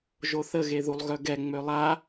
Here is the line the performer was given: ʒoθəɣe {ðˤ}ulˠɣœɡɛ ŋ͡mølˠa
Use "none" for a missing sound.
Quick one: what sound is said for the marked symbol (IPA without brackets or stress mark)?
ð